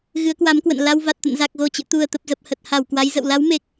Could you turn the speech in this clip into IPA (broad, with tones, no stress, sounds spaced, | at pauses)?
ɣ ɨ˨˦ ə̯ k w a˨˦ m k w ə̰˧˨ n l a˧ w v a˨˩ t̚ t̪ ə̰˧˨ n z a˨˩ k̚ ɣ o˨˩ t͡ɕ ɨ̰˧˨ t̪ u˨˩ ə̯ t̪ ə˨˩ p̚ z ə˨˩ p̚ h ə˨˩ t̚ h a˧˩ w k w a˨˦ j z ə̰˧˨ w l a˨˦ w m e˨˩ k̚